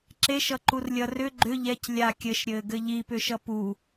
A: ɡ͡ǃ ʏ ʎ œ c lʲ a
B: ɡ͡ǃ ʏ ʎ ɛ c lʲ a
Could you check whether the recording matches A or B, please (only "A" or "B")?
B